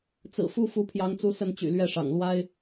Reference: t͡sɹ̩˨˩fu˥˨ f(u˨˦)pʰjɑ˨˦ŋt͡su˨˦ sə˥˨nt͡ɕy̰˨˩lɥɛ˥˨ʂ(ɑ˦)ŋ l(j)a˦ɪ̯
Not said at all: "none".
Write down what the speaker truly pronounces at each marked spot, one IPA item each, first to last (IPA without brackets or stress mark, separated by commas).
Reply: u˨˦, ɑ̰˨˩, w